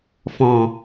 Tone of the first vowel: low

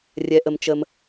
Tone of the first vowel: low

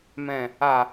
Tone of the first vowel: low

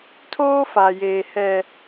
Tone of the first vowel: high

